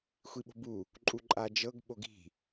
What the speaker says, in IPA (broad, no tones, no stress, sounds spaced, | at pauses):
xʷ i ɓ o̤ b u | ǃʼ u ǃʼ a d͡ʒ ɤ ɡ ɓ o ɡ i̤